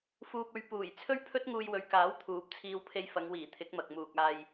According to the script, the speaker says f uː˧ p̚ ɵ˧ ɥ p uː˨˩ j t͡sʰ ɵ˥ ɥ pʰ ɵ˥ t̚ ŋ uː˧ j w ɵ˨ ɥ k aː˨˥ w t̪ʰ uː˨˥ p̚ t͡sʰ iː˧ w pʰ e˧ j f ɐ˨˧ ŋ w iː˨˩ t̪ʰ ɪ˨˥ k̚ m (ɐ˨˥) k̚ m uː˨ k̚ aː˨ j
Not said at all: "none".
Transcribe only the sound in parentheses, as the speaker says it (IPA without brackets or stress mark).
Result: ɐ˨